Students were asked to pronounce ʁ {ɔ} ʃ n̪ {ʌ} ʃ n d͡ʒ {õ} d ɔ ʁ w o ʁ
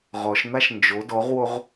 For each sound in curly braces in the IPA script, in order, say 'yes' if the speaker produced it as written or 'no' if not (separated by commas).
yes, no, no